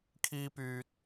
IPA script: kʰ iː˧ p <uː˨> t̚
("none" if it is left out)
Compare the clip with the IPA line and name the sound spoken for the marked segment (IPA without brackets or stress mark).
yː˨